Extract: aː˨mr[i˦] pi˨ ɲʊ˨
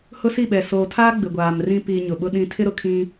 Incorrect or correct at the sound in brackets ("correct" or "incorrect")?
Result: incorrect